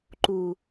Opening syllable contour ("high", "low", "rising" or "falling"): low